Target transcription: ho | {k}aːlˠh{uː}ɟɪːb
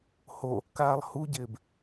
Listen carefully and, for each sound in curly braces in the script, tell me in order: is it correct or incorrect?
correct, incorrect: u

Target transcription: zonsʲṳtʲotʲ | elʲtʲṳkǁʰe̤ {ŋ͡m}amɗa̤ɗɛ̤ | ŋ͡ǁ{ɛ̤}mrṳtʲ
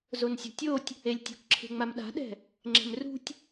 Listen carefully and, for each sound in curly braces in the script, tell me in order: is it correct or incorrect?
correct, correct

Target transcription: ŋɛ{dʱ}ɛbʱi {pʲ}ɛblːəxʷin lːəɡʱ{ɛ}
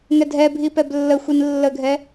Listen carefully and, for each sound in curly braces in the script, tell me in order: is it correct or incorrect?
correct, incorrect: p, correct

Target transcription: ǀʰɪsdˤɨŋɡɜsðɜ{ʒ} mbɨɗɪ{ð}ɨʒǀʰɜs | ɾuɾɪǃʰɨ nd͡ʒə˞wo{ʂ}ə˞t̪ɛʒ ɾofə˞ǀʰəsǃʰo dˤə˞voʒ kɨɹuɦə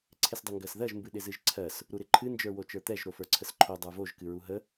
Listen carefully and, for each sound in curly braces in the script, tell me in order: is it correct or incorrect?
correct, incorrect: z, incorrect: t͡ʃ

